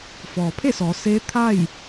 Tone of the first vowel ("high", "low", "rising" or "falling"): low